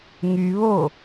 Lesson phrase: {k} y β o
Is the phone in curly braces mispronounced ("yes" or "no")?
yes